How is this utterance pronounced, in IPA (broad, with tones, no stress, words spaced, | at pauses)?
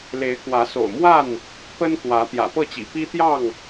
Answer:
le˨˦ɪ̯kwä˨˦so̰˨˩ʊ̯mwa˥˨n | pə˦nkwä˨˦ t̪jä̰˨˩pɤ˥˨t͡ɕḭ˨˩ pi˦t̪jɑ˥˨ŋ